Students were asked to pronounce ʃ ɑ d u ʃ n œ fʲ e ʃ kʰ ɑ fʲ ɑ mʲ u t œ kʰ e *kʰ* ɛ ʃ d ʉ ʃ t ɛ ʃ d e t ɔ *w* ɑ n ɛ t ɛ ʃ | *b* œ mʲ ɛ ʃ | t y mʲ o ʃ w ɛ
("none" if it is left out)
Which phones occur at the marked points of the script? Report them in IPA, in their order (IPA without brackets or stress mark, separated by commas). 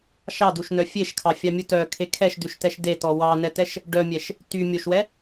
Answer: kʰ, w, ɖ